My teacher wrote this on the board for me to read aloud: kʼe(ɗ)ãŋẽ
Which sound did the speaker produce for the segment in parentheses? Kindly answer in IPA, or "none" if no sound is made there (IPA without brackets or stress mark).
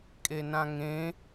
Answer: n